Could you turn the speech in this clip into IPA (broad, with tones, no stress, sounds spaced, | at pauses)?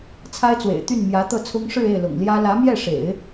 t͡sʰ a˥ ɪ̯ t͡s w ḛ˨˩ ɪ̯ t̪ y˥˩ n m j ä˧˥ t̪ ɤ˥˩ t͡sʰ ʊ˥ ŋ ʂ ɻ̩˥˧ e˥˩ ɪ̯ l ʊ̰˨˩ ŋ l j ä˥ l ä˧˥ m j ɛ˥˩ ʂ ḛ˨˩˦ ɪ̯